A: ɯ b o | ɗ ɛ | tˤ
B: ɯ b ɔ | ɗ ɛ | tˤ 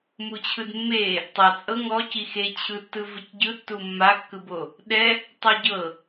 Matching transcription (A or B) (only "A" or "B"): A